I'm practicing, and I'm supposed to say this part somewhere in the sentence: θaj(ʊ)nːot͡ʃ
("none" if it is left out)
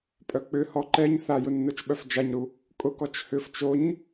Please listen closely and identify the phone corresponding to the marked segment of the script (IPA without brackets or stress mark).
ʊ